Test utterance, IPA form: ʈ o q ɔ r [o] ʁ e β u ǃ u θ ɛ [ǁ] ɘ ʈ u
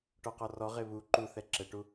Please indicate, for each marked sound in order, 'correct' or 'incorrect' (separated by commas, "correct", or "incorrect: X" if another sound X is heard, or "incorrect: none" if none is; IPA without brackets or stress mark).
incorrect: ɔ, correct